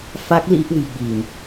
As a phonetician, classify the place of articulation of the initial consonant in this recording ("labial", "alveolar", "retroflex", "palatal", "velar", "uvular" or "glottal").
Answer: labial